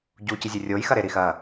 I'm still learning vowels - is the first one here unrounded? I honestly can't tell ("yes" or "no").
no